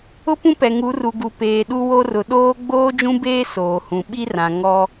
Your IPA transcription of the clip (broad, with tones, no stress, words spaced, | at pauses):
ʊ˦pũ˦pɛ˨ ŋu˨˦ru˨ɡu˨ peː˨ɗu˦wo˦rʊ˨ ɗoː˦ ɡ͡boː˦d͡ʒũ˦beː˦ soː˨hũ˨ ɓi˦rã˨ ŋɔ˦